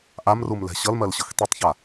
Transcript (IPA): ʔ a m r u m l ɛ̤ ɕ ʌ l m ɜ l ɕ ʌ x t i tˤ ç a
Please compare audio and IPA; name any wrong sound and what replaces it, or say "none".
none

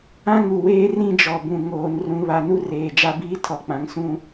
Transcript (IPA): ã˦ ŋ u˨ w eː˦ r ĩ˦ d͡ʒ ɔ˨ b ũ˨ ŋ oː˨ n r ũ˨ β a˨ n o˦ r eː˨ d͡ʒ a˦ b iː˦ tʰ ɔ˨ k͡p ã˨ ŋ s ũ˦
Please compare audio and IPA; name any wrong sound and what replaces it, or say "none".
o˦ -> u˦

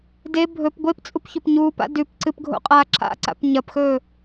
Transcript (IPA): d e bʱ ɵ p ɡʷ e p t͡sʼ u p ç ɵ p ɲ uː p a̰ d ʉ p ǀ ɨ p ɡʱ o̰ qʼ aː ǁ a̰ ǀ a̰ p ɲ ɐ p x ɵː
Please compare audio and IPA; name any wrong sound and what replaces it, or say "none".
none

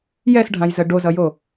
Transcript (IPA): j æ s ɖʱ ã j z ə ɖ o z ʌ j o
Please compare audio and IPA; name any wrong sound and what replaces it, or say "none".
æ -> ɛ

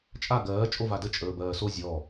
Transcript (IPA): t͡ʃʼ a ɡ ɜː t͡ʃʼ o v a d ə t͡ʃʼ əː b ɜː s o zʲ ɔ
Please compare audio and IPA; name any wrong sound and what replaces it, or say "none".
none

